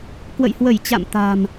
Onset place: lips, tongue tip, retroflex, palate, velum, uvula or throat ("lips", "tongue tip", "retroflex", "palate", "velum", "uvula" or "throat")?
velum